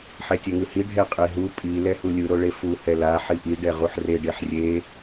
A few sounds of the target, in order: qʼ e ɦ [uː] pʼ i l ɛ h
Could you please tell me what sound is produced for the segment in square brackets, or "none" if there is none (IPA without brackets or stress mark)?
u